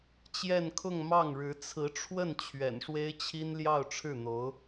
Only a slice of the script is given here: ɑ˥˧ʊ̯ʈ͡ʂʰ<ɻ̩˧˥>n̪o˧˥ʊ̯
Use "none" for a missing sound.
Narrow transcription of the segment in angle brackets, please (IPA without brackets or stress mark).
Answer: ɻ̩˥˩